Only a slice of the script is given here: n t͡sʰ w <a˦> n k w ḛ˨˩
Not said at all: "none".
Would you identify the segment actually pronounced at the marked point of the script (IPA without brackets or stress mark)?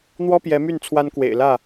a˦